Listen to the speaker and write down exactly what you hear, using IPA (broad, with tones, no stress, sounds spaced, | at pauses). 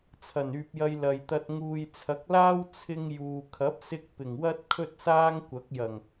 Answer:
t͡sʰ ɐ˨˩ n yː˨ p̚ j ɐ˧ j l ɐ˨ j t̪ ɐ˧ t̚ ŋ uː˨ j t͡sʰ ɐ˨˥ k̚ l aː˥ w t͡sʰ ɪ˧ ŋ j uː˨ kʰ ɐ˨˥ p̚ s ɪ˧ k̚ p ɪ˨˩ ŋ w ɐ˥ t̚ kʰ ɵ˥ t̚ s aː˥ ŋ kʷ ɐ˨˥ k̚ j ɐ˨˩ ŋ